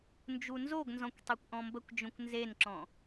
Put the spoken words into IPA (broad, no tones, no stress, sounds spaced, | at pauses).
n d͡ʒ u n z o ɡ n z ɔ̃ kʷ tˤ e kʷ ʔ ɔ̃ m b ə kʷ d͡ʒ õ kʷ n z e n ǁ ɔ̃